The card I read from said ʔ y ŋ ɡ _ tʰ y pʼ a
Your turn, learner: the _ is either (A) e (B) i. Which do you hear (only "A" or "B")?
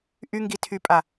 B